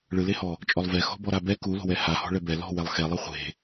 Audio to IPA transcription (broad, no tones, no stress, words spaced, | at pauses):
ɭɯlehɔ | t͡ʃʼɔlˠvɛ xɔ̤bɔɾabɛ kulo̤wɛ hahɔ̤ɭɛ bɛ lɔ̤ wɛlˠxɛlˠɯ χʷe̤